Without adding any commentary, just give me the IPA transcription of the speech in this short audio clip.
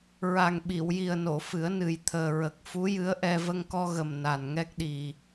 ɹ a˨˩ ŋ ɓ i˨˩˨ w j i˨˩ ə̯ n o˨˩˨ f ɨ˨˩˦ ə̯ n ɨ˨˩ j t̪ʰ əː˨˩ ɹ ə˨˩ k̚ f u˧˥ j ɨ˧˥ ə̯ ʔ ɛ˧ v ə˧ ŋ k ɔ˧ ɣ ə˨˩ m n a˨˩ n ŋ ɛ˦˥ k̚ ɗ i˨˩

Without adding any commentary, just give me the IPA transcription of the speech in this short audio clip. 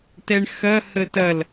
t ɛ ɳ x ɐ h ə t ɐ l

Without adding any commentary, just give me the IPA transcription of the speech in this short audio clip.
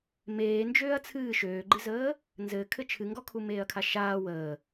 m eː n d͡ʒ øː ɐ̯ t͡sʰ ɨː ʃ øː ɡ͡ǃ ɨ z əː | n z ɘ kʰ ɘ t͡ʃʰ ɨ ŋ ɡ ɔ kʰ u m eː ɐ̯ kʰ a ʃ aː w əː

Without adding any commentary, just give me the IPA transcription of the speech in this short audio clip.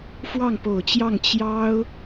f w ɑ˥˩ ŋ p o˨˩ ʊ̯ t͡ɕ j ɑ˥˩ ŋ t͡ɕ j ɑ˥ ʊ̯

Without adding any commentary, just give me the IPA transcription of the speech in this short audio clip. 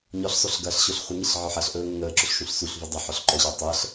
ɲ ɔ ɬ sˤ o ɬ ɡ ɐː ɬ ɕ o ɬ χʷ ə ŋ i ɬ ʕ ɔ ħ ɐ ɬ ʔ ɵː ŋ ə ŋ əː ǁ ɵ ɬ ʃ ũ ɬ s u ɬ v u dˤ ɐ ħ ɔ ɬ ǃ ɔ ɕ ɵː tˤ əː ɬ

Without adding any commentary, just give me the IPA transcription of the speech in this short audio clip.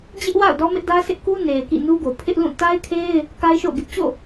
d͡ʑ ɪ˦ ʔ w a̰˦˨ ʊ̯ d ɔ˦ m ɪ˦ ʔ d ä˦ s ɪ˦ ʔ k u˦ n e˨ ɪ̯ k ḭ˦˨ n u˦ ɡ o˨ pʰ ɪ˦ ʔ l ũ˦˨ t a˦ ɪ̯ kʰ e˦ ɪ̯ | k a˦ ɪ̯ ʃ o̰˦˨ ʊ̯ ɡ ɪ˦ ʔ t͡ɕ o̰˦˨

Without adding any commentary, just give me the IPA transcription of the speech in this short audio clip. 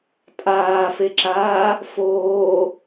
tʼ aː f e ǁ aː | f oː

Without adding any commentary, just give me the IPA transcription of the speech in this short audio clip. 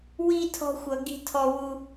w i˥ tʰ ɔ̤˥ xʷ ʌ˦ ɡ i̤˦ tʰ ɔ˦ w u˦

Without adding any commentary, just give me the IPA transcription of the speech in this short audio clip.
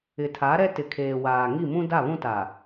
ɪ˨ tʰ a˨˦ ɾ ɛ˦ t ɪ˨ kʰ eː˨ w aː˨ ŋ i˦˨ m ũ˦ d a˦˨ β ũ˦ t a˨

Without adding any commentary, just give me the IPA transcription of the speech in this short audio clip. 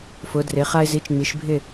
f ʊ˩˧ d r ɪ˩˧ χ a˧ ɪ̯ z i˩˥ t͡ʃ ŋ͡m i˩˧ ʃ bʱ ɪ˥˨

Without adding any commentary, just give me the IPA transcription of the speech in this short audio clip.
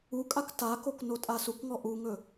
u kʼ a k t a k o k n o tʼ a s u k ŋ ɔ ʔ u ŋ ɵ

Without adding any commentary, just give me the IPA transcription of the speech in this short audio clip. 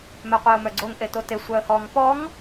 m œ qʷ e ʊ̯ m œ ɡ͡ǀ o ŋ ʔ e t o t e sʷ œ ə̯ h ɔ ŋ p ɔ ŋ

